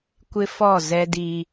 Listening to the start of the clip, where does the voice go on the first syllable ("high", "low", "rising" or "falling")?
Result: high